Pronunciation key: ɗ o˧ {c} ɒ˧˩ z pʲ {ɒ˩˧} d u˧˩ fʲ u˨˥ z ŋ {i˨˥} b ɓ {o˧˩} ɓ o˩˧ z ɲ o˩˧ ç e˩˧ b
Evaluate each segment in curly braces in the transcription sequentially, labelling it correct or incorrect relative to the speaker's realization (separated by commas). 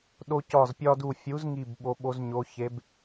correct, incorrect, incorrect, incorrect